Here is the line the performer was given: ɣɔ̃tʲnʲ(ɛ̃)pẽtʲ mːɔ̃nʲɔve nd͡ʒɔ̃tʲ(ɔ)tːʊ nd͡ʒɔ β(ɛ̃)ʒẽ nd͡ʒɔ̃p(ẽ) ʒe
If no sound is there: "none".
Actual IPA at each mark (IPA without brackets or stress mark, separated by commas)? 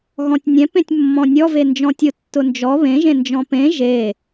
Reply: ɛ̃, ʊ, ẽ, ẽ